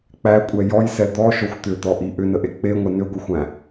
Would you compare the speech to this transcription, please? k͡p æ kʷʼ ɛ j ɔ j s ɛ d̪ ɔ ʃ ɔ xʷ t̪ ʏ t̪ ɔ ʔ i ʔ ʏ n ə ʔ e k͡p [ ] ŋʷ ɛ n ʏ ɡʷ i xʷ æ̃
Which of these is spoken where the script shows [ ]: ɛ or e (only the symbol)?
e